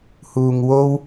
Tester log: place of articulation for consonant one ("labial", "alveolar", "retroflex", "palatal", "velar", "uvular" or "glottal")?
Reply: glottal